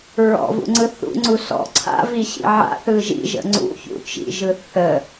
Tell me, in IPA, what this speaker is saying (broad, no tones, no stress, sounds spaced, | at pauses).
ɹ ɔ̰ v ṵ ŋ͡ǀ ɯ θ ṵ ŋ͡ǀ u s ɔ̰ ǀʰ a̰ v i ɕ ḭ ʕ a̰ θ ɯ ʒ ḭ ʒ ə̰ ŋ͡ǀ ṵ ç ṵ t͡ʃ ḭ ʒ ɯ θ ə